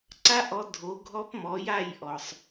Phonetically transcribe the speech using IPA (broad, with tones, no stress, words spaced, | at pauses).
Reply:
ǀa˦˥ʔɔ˨˥ dʱo˨˥ɡʱɔ˦˥pmɔ˨˥ja˥˨j ʔɔ˨sˤ